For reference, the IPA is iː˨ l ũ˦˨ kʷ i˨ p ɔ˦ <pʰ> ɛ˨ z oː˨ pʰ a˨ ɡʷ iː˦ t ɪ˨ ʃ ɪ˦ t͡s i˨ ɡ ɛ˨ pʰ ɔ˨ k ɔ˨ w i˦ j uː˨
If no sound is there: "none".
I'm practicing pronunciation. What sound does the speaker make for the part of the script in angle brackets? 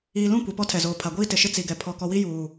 tʰ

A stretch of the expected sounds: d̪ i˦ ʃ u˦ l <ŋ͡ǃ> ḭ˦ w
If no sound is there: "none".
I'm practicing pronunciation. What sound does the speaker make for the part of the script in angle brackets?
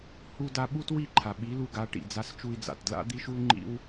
ŋ͡ǃ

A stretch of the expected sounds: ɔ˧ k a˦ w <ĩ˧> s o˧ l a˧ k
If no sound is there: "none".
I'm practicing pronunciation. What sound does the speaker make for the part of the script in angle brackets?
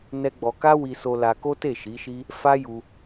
i˧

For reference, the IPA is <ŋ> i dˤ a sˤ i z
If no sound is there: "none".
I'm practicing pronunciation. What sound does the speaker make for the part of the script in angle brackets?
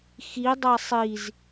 x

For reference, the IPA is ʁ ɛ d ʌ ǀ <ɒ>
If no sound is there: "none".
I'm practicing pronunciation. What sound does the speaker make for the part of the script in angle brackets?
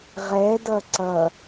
ʌ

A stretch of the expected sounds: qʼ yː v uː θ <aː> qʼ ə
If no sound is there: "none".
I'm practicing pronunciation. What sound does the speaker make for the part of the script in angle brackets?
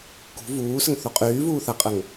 a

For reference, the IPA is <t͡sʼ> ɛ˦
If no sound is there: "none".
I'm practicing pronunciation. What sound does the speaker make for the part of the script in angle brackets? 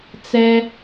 t͡s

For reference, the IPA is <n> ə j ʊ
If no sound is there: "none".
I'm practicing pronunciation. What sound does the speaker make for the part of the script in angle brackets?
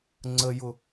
ŋ͡ǀ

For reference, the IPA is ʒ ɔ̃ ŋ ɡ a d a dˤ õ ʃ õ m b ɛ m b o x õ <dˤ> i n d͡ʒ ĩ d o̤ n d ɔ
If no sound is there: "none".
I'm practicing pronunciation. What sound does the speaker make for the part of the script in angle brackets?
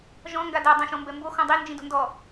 dˤ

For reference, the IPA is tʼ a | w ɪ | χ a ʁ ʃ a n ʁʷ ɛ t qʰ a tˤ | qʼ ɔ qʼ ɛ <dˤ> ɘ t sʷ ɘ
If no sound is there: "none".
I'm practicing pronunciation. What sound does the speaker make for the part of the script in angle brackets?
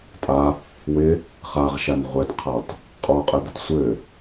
d̪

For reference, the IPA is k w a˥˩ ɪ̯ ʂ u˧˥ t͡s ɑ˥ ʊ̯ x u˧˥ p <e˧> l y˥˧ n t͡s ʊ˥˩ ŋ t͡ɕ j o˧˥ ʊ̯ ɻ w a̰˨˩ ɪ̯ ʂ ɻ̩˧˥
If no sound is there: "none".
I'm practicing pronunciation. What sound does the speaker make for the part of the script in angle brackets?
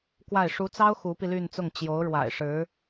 i˧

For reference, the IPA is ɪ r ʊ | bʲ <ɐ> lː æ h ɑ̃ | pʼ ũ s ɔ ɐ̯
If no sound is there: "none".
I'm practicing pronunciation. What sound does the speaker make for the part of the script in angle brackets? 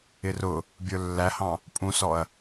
ə˞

